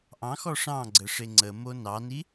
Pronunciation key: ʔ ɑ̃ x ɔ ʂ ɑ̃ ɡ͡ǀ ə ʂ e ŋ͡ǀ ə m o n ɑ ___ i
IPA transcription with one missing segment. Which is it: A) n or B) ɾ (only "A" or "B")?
A